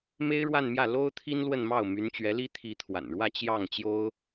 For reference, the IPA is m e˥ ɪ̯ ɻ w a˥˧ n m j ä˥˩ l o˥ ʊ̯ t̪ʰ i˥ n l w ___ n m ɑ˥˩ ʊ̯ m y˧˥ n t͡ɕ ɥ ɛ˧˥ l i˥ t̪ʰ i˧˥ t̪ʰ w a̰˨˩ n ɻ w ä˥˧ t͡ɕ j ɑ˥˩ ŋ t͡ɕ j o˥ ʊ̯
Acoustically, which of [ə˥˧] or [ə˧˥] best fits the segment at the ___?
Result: ə˥˧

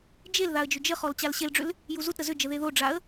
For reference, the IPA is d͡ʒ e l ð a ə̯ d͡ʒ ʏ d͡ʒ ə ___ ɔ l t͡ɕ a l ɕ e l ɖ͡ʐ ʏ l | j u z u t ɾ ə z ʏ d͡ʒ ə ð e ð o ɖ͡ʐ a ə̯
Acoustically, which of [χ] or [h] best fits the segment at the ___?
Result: χ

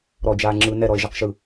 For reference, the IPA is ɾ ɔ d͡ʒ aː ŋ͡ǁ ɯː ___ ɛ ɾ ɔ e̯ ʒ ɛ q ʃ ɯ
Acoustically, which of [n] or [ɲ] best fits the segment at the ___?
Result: n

